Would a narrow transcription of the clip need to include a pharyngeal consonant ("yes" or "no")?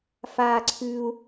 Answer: no